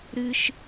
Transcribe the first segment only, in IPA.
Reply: ɾ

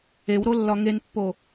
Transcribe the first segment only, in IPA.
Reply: e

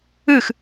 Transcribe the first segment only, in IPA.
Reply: ɨ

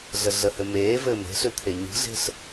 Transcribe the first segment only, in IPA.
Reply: ɮ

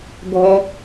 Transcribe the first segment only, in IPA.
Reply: ɡʱ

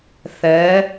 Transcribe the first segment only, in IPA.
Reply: θ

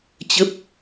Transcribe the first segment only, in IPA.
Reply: t͡ɕ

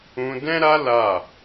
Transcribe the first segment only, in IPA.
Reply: ũ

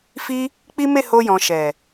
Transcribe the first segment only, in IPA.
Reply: f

